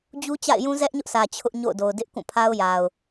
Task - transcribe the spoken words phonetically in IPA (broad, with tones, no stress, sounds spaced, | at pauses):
d͡ʑ u˦ t͡ɕ a̰˦˨ ɪ̯ j ũ˦ z ɛ˦ ʔ ɲ ʊ˦ ʔ s ä˨ t͡ɕʰ ʊ˦ ʔ ɲ o̰˦˨ ʊ̯ d o˨ ʊ̯ d ɪ˦ ʔ k ũ˦˨ pʰ a˦ ʊ̯ j a˨ ʊ̯